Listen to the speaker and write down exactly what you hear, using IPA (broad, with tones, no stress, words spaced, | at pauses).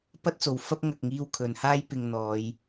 pɐ˥t̚t͡so˨w fɐ˥p̚ ŋɐ˨k̚ŋiː˧w kʰɵ˨˧nhaː˥j pɪ˨ŋ n̪ɔː˨˧j